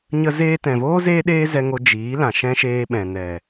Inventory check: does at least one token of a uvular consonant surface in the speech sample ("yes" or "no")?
no